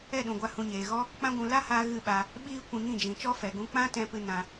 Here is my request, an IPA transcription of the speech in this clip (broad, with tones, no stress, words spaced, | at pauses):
ɛ˦˨ɗũ˨ɡʷa˧ hũ˨ɲeː˨ɣɔ˦ | k͡pã˦ ɡʷũ˧ la˦haː˧ ɣɨ˦˨ɓa˧ | ɓiː˧ kʷĩ˧ŋĩ˦˨ d͡ʒĩ˨t͡ʃɔ˦fɛ˨ɡũ˧ k͡pã˦tɛ̃˧pɨ˧ nã˧